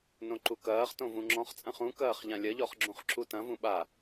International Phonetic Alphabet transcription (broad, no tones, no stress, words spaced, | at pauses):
nõǃukɐːχtõ vũŋ͡ǁɔ̃χt͡sʼɐ̃χ ũkɐːχ ʎãlʲɐʎɔχ ɡ͡ǁũχǁutɐ̃vũ ɓa